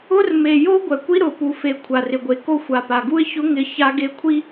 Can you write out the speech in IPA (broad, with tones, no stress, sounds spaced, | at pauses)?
ʊ˦ r m e˨ j o˦ ɡʷ ɛ˨ kʷ i˦ ɾ ʊ˨ p u˨ f e˨ kʷʰ a˨ r ɪ˨ ɡʷ e˨ k o˦ xʷ a˨ p a˨ ɡ u˦ ɪ̯ ç ʊ˦ ŋ ɪ˦ ç a˦ ɡ e˦ kʷʰ i˦